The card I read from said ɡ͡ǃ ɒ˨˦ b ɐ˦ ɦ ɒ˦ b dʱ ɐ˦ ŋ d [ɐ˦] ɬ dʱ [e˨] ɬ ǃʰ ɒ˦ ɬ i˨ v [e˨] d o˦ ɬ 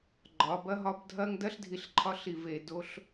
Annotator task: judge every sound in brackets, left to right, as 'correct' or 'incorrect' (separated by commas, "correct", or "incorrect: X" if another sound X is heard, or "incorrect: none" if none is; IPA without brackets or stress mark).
correct, incorrect: i˨, correct